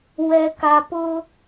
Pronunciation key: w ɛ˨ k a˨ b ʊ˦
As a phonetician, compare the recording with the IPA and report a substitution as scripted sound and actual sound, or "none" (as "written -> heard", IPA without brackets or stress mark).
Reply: b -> p